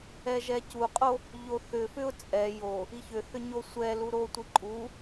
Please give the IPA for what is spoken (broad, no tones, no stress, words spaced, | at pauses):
ɛʒɛcuqʼo | ʎoθʏfʏʊ̯ t͡sʼɛ jo | içʏθʏ ɲosʷɛlu ɾotʷi ǃʼu